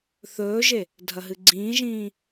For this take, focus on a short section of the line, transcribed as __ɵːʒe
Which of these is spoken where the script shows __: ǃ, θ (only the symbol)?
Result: θ